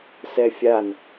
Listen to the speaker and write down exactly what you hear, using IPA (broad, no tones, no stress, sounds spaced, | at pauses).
s ɛ fʲ a n